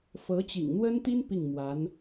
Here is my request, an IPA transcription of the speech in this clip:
fɤ˧˥t͡ɕḭ˨˩ŋn̪wə˥nt̪i˥n pi˥˩ŋ mwa˧˥n

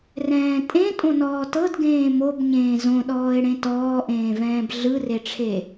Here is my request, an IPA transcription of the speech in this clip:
rɛ̃ːtʼẽ tʼõnɔːtɤd ɡẽːmob ɲẽːzõɗɔːɪ̯ɽẽ tɔːʔẽːvɛ̃ːb ɮɯreʈ͡ʂʰe

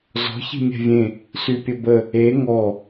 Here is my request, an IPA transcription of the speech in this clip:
zɔ̤ çi̤mʲɛ̤vʲẽ | sypʲəbə | e ŋɔ

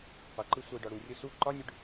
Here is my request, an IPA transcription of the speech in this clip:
qʷʌǃɯ sʷʌi̯ɖɒɽurʲʊ su ǃɒnʲʊɖ

